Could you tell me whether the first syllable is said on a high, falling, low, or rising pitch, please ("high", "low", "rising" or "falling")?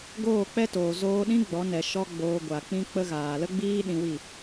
falling